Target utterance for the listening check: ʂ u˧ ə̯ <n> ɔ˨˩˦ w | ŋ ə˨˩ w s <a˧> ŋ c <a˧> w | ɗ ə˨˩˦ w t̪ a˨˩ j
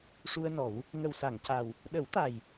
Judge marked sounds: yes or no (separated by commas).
yes, no, no